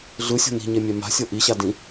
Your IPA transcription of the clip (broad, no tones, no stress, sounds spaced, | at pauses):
ɮ ɯ sʲ ɔ̤ n i̤ ɲ e mʲ ɛ m a̤ sʲ ɤ ʔ i ɕ a d ĩ